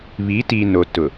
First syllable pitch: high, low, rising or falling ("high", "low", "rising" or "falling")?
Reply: rising